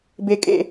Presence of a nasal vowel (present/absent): absent